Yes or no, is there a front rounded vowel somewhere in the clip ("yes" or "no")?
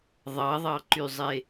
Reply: yes